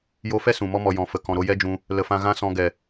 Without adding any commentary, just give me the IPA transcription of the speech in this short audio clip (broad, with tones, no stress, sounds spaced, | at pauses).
j o˧ f ɛ˦ s ũ˨ m ɔ˧ m ɔ˨ j ɔ̃˨ f ə˨ k ɔ̃˨ ɾ o˧ j ɛ˦ d͡ʒ ũ˧ | l ə˨ f ã˧ ɣ ã˦ s ɔ̃˧ ɡ ɛ˨